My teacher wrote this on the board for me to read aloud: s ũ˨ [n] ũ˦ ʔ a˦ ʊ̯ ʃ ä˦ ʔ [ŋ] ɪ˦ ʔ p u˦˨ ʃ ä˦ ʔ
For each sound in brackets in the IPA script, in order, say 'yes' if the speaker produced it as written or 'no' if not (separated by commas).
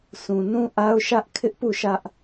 yes, no